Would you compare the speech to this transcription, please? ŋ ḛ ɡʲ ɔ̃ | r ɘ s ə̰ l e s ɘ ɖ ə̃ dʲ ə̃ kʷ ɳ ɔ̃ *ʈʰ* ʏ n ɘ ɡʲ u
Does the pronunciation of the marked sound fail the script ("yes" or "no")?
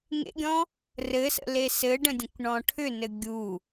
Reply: no